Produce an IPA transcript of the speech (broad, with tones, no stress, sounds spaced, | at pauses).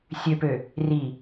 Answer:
sʲ ø˨ p ø˨ | r i˨